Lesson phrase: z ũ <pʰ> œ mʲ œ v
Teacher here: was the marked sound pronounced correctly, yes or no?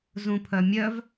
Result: yes